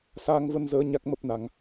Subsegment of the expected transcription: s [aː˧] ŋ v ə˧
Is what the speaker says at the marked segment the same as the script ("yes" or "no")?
yes